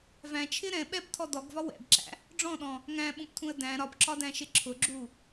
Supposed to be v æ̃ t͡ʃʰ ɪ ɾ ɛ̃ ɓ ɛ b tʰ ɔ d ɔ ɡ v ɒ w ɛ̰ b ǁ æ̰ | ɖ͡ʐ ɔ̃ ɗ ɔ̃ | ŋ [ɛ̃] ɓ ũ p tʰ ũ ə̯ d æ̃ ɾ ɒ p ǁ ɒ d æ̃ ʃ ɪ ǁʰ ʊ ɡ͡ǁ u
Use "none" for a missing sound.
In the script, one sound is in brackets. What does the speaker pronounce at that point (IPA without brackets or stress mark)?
æ̃